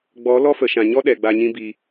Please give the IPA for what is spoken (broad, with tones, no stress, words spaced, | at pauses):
ɡ͡bɔ˨˦ lɔ˦fə˨ ʃã˨ɲɔ˦ ɗɛ˨ɡ͡ba˧ɲĩ˦bi˧